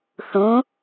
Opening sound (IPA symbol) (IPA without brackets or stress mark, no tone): θ